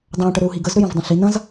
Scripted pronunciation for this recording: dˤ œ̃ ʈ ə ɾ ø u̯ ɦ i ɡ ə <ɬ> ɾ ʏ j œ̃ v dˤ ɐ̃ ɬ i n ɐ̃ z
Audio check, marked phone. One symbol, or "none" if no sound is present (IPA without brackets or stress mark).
z